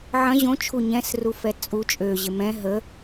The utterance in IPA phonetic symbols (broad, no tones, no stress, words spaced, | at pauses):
ʕɐ̃ ʑõt͡ʃʰu ɲɛ̃srufɛ t͡sʼu t͡ʃʼøʑɪ mɛ̃ ɦə